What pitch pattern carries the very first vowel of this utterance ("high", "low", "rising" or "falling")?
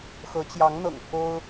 rising